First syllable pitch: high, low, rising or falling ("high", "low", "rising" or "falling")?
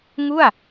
falling